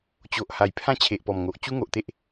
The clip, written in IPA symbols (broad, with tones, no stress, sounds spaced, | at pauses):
t͡ɕ o˨ ʔ h a˨˩ j pʰ ã˥˧ t͡ɕʰ e˨ ʔ p ɔ˨˩ m ŋ o˨ ʔ t͡ɕ u˦ ŋ o˨ ʔ t̪ e˦ ʔ